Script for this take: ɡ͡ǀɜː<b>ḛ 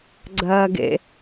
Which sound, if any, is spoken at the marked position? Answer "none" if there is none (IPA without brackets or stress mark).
ɡ